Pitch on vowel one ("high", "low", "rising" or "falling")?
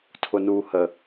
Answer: low